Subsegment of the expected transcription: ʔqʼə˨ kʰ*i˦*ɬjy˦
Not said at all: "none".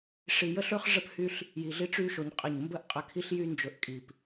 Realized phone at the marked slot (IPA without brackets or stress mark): i˦